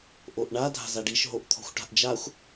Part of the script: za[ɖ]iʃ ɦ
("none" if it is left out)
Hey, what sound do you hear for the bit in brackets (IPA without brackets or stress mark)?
ɖ